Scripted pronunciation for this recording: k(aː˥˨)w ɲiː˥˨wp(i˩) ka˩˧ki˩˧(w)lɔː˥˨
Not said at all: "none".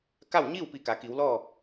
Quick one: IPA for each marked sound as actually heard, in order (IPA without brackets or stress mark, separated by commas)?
a˥˨, i˧˩, w